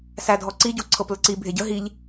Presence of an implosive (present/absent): absent